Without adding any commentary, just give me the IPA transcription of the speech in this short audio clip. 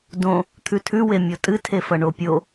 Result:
dõ | t̪ʰʉtʰʉwe mʲotʼɨtʰefɐ ɳopʲo

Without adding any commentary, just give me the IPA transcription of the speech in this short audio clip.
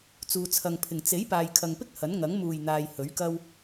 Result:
t͡suː˨t͡sʰɐ˨ŋpʰɪ˨˩ŋ t͡se˨˥j paː˨jkʰɐ˨ŋpɪ˥k̚ hɐ˨˥nŋɐ˨˥ŋ muː˨˩jn̪aː˨j hɵ˨˥ɥkɐ˥w

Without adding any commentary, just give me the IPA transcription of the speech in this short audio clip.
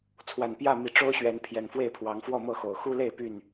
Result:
t͡sʰwa˨˩npjä˥˨mi˨˦ ʈ͡ʂo˦ʊ̯ɕɥɛ˨˦n pʰjɛ˨˩nfwe˥˨ɪ̯pʰwɑ˨˦ŋ fwɔ˥˨mɤ˥˨xo˨˩ʊ̯ xu˦le˥˨ɪ̯ py˥˨n

